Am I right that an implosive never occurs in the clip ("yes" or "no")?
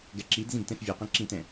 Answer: yes